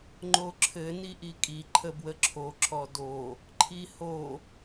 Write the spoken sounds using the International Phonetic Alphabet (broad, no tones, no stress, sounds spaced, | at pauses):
ŋ͡ǃ o ǁʰ ɘ n i ʔ i kʼ i ǃʰ ə b w ə ǁʰ o ǁ ɔ d o | ǃʰ i h o